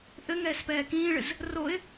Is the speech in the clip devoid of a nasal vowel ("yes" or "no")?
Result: no